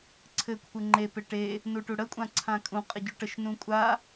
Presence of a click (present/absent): present